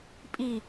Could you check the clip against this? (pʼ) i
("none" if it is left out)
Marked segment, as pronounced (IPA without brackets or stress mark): pʼ